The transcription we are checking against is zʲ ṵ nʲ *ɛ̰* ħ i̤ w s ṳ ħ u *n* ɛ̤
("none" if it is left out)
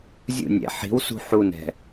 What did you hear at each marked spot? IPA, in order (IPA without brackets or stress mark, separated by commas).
ɛ̰, n